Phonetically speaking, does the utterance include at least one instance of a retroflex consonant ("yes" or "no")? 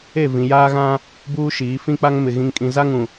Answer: no